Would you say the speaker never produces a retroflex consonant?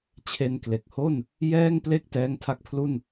yes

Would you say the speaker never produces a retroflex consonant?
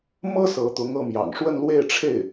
no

